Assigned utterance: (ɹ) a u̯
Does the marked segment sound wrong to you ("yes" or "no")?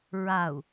no